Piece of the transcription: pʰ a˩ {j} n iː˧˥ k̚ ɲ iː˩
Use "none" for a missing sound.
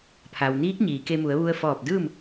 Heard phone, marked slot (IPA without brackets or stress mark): w